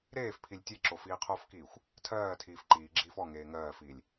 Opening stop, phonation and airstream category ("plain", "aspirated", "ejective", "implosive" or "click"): aspirated